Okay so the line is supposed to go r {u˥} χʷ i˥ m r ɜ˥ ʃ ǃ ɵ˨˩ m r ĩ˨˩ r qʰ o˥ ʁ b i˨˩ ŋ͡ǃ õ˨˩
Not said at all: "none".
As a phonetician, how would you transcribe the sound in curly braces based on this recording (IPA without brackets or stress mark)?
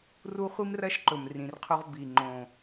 u˥